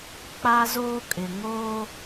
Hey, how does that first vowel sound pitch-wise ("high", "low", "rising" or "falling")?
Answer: high